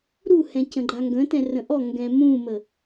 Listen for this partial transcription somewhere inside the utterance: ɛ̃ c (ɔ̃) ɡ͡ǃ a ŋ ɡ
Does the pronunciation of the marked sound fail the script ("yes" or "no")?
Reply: yes